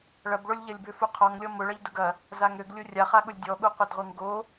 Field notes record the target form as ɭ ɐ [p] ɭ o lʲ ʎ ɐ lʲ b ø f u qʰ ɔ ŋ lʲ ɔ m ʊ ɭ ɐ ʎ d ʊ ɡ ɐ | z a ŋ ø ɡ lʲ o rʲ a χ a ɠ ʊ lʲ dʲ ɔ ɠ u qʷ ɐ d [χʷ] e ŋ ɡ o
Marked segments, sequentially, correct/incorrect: incorrect: b, incorrect: ʁʷ

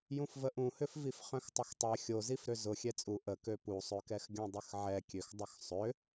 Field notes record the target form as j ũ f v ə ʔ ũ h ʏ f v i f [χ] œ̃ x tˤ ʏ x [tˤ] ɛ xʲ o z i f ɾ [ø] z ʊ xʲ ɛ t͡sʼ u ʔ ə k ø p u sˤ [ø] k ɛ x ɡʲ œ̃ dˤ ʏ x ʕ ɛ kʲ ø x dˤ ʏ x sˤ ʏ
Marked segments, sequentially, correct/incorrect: correct, correct, correct, correct

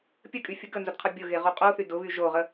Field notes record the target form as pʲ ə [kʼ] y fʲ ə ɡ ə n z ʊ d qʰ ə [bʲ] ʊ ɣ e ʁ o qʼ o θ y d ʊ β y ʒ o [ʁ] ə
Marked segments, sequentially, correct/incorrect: correct, correct, correct

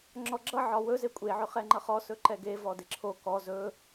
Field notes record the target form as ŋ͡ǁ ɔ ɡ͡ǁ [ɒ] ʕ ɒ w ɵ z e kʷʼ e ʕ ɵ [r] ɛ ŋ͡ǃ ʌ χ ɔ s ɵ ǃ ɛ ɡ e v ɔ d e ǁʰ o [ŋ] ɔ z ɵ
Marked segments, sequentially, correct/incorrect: incorrect: ʌ, incorrect: χ, incorrect: k

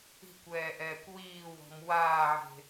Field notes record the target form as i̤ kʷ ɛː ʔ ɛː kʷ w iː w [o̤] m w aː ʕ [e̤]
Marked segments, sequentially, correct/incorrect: incorrect: ɔ̤, correct

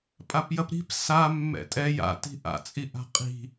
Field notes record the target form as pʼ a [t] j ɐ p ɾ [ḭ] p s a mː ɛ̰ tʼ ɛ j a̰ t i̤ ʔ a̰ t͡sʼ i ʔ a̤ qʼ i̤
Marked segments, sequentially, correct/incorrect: incorrect: p, incorrect: i̤

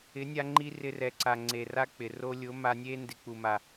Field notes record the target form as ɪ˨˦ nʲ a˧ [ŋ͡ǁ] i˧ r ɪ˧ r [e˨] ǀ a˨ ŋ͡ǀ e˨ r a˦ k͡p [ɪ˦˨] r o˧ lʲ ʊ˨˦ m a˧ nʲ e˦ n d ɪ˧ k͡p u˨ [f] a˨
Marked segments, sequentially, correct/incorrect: incorrect: ŋ͡ǃ, incorrect: ɛ˨, incorrect: ɪ˨, incorrect: m

